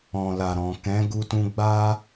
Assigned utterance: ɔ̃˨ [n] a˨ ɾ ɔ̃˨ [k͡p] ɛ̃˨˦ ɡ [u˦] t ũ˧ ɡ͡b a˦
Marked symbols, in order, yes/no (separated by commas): no, no, no